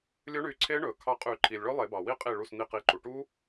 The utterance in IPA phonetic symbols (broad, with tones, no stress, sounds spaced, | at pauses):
lʲ ɵ˦˥ ɳ y˧˩ ǀʰ e˦˥ ɳ ɵ˩ kʰ ɑ˧˩ qʼ y˨˩˦ ǃʰ i˩ lʲ ɭ ɵ˦˥ lˠ e˨˩˦ b ɑ˩ w i˦˥ qʼ i˧˩ ɭ u˧˩ s n̪ i˧˩ q i˩˧˩ ǃ u˩ ʈ u˦˥